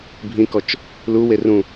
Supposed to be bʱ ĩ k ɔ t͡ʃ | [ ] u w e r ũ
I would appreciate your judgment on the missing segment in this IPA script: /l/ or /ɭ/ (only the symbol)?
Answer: l